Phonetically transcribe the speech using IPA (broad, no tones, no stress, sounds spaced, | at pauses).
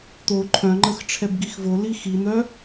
t̪ o ǃʰ œ̃ ŋ͡ǃ ə x ʈ͡ʂʰ ɛ b ɡ i x v o l i x i n̪ œ